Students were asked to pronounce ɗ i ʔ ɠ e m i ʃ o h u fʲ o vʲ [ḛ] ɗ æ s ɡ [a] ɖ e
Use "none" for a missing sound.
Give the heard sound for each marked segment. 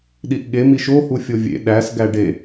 ḛ, æ

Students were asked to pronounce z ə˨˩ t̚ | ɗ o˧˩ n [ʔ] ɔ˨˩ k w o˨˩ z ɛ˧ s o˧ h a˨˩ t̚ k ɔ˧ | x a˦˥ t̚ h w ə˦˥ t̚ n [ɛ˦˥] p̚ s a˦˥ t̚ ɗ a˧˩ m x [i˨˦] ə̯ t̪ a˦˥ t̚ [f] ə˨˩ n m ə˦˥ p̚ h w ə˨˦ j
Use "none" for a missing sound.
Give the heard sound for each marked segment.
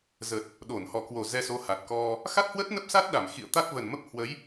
h, ə˦˥, ḭ˧˨, v

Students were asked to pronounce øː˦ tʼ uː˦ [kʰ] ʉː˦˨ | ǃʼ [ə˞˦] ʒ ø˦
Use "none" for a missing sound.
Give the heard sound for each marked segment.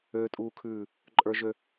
kʰ, ə˞˦

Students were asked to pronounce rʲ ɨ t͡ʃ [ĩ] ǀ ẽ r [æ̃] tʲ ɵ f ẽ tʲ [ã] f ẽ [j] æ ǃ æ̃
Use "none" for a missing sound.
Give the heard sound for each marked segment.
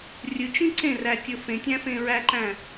ĩ, æ, æ̃, ɹ

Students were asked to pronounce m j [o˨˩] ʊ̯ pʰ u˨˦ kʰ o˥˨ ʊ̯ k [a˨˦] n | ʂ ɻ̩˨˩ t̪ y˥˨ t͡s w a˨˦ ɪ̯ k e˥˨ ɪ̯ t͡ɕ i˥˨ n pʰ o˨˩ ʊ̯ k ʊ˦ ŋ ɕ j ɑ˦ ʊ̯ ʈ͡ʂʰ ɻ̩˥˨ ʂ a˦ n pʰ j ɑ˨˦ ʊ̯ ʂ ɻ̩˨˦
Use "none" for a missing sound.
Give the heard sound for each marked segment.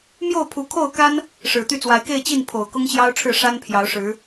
o˥˨, a˦

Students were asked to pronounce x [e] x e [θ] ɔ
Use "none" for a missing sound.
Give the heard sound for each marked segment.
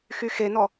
y, n

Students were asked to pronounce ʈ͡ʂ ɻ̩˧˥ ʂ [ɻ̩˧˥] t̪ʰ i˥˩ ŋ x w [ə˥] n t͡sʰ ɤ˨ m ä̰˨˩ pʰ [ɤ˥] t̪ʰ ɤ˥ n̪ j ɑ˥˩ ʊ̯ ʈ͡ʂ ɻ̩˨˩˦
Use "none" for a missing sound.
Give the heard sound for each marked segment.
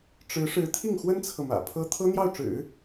ɻ̩˧˥, ə˥, ɤ˥

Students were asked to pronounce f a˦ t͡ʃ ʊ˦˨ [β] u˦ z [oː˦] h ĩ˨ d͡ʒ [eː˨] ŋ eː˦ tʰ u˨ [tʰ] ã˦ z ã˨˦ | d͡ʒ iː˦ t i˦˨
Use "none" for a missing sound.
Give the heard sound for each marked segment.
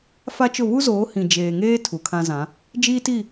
β, oː˨˦, eː˨, kʰ

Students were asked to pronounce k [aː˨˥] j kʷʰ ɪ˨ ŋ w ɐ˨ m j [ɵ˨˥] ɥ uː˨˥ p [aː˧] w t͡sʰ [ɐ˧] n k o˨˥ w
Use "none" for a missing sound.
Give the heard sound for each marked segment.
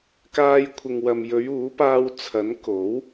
aː˧, ɵ˨˧, aː˧, ɐ˨˥

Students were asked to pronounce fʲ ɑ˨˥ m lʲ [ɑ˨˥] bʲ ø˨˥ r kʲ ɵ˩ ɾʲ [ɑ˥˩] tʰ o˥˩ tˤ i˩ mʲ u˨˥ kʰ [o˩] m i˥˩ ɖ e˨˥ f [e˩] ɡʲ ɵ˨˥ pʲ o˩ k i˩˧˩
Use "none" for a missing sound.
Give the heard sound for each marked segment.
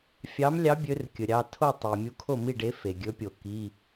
ɑ˨˥, ɑ˩˧˩, o˥˩, e˩

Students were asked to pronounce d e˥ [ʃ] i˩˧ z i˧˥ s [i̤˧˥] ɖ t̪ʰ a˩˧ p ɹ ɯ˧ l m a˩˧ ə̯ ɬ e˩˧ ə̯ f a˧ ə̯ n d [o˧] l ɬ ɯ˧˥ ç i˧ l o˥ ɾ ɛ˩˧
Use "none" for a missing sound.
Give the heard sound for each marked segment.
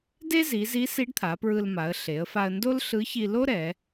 z, i˧˥, o˥

